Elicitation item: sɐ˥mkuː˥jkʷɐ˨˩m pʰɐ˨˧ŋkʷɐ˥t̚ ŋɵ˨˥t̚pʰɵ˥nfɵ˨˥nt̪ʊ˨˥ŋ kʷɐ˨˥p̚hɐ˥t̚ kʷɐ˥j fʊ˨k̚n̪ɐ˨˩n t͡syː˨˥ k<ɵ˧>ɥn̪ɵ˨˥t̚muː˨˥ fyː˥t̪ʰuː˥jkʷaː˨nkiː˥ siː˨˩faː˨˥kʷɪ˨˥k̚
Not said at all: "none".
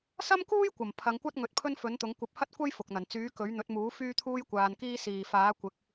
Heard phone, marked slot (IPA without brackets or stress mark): ɵ˨˥